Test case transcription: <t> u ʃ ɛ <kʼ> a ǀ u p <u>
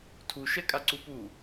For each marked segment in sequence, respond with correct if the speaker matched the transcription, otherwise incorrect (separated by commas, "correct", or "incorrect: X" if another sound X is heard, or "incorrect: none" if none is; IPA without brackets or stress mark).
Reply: incorrect: tʰ, correct, correct